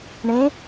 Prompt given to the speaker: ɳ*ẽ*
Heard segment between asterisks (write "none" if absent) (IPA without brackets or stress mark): ẽ